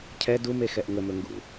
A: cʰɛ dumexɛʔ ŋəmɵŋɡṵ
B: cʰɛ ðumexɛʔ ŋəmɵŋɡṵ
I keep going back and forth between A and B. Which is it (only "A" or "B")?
A